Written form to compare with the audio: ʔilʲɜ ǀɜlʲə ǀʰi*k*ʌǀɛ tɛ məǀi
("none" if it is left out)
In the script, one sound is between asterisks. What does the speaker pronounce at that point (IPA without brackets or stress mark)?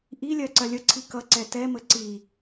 k